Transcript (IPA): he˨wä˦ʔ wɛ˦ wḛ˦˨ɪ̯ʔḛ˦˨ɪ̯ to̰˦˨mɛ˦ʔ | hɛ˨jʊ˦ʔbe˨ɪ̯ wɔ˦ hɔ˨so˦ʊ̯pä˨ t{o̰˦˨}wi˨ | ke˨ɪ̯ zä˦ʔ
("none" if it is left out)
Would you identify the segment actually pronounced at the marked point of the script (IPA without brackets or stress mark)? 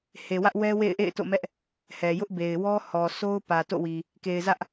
o̰˦˨